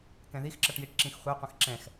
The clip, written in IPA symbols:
k ɛ̃ ð i x ǁ ʌ ʈ j i ʈ ǁ ĩ x χʷ ɛ qʷ ə̃ x ǁ ɛ̃ x

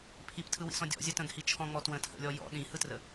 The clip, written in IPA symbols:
pʰ i p tʰ ɯ w ḭ s ɔ̃ dʲ ɔ̰ zʲ ə t ə̃ ɡ h i t͡ʃʰ ɔ̃ ŋ͡m ɔ t w ə̃ tʰ ə̰ lʲ ɔ j ɔ̰ ɗ ĩ h ɯ t r ə

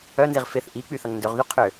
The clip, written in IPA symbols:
œ n z i ʁ f ɪ θ ʔ i k͡p y θ ɐ ŋ n d ø ʁ ð y qʰ ø

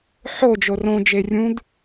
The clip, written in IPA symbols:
ħ o d͡ʒ o r õ d͡ʒ e rʲ ũ d

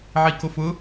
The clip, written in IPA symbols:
ʕ i k o f ʊ

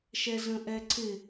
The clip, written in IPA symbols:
ʃ ɛ z ə̃ ʔ ɛ ǀ ɪ

